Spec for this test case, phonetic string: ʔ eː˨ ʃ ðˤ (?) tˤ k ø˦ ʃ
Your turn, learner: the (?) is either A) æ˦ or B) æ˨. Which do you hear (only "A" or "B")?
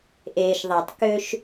B